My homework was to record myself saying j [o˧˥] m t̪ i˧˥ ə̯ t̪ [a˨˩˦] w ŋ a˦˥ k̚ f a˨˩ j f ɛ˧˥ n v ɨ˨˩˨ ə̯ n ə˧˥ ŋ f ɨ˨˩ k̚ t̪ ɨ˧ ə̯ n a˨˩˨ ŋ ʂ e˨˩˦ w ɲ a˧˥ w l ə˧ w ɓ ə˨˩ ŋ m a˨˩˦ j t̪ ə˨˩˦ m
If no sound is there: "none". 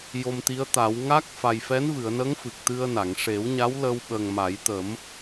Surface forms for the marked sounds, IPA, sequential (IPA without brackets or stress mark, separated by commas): o˧, a˨˩˦